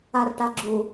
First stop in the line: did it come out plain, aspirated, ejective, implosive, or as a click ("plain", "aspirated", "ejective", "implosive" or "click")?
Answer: plain